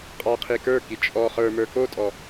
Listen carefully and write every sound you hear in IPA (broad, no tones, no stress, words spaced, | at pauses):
qʼɑ qʰikə˞ki t͡ʃʼɔ χə˞mə˞ kotʼɔ